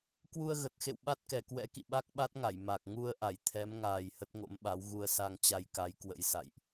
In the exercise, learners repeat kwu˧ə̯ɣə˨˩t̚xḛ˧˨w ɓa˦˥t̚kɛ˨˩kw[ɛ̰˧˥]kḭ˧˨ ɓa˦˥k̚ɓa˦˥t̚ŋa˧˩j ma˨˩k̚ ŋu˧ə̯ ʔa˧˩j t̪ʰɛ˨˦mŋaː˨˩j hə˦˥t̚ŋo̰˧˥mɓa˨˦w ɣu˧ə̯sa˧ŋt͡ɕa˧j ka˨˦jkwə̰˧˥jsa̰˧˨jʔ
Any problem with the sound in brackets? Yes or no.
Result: no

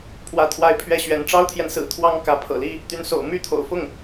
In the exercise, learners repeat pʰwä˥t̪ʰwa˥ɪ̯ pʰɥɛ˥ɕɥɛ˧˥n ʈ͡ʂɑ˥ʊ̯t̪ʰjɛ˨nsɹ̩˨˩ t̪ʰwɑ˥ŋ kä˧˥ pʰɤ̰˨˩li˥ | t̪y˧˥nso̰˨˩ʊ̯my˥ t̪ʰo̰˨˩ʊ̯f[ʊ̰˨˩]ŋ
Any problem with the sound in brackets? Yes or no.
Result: yes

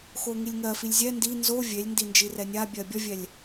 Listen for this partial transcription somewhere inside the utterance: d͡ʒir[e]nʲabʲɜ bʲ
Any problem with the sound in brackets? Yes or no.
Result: yes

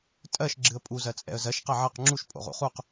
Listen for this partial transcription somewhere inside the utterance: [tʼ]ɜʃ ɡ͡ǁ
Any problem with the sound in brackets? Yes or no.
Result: no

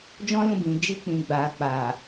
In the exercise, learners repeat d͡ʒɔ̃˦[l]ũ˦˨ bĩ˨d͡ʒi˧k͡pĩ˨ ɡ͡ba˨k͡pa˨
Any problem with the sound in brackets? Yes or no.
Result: no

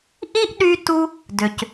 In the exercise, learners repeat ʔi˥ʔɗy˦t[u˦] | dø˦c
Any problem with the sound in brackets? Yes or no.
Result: no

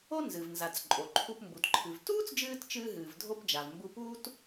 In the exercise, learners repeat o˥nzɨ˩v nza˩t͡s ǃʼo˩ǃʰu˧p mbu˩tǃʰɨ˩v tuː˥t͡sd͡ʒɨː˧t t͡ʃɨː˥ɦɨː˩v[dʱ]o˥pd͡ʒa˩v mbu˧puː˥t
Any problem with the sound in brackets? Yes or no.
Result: no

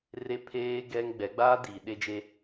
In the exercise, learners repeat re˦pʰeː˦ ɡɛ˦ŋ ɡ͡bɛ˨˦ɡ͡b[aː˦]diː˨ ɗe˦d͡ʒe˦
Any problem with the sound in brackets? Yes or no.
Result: no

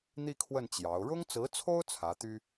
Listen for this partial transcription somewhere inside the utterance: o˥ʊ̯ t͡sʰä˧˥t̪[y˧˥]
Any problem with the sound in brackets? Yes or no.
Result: yes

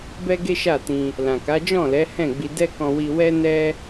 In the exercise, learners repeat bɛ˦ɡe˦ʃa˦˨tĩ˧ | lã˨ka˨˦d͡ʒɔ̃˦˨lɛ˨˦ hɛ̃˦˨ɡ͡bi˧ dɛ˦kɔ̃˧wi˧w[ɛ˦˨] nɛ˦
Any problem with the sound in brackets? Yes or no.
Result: yes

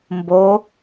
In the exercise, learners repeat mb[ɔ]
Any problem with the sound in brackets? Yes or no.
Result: yes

